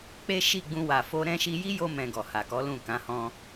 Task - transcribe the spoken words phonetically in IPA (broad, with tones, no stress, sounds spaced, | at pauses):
k͡p e˦ ʃ i˦˨ ɡ͡b ũ˧ w a˨ f o˧ ɾ ɛ̃˦ ʃ i˧ j i˦ j o˧ m ɛ̃˨ ɡ ɔ˨ h a˨ k ɔ˨˦ l ũ˦˨ k ã˨˦ h ɔ̃˧